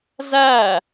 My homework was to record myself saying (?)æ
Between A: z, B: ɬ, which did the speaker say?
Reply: A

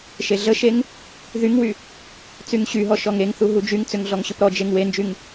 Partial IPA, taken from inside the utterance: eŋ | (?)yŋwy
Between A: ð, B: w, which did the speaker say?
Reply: A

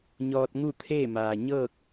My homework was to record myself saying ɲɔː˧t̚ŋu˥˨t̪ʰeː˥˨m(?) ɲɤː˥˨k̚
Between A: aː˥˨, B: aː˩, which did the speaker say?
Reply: B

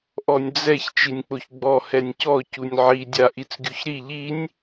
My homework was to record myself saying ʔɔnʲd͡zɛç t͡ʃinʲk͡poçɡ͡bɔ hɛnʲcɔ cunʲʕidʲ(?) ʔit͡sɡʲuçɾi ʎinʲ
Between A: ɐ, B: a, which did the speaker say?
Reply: B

